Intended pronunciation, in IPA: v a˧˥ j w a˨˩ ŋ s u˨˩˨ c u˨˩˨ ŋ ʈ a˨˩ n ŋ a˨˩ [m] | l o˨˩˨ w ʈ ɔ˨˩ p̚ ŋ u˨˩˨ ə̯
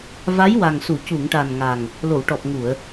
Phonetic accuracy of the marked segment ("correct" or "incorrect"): incorrect